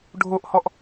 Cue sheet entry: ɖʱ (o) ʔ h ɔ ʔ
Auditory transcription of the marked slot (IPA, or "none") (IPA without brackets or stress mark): o